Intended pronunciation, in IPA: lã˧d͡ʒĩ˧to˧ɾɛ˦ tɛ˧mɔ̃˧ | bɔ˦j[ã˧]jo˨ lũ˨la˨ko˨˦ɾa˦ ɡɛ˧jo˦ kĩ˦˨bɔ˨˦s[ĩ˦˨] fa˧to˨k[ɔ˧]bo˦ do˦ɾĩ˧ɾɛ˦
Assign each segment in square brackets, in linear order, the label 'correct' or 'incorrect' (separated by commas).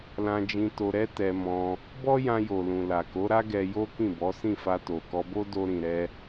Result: correct, correct, correct